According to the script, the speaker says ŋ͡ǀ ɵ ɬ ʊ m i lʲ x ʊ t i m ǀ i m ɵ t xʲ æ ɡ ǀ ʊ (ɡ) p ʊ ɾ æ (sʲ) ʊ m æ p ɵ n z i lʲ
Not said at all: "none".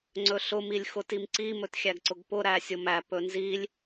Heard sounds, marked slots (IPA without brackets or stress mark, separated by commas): ɡ, sʲ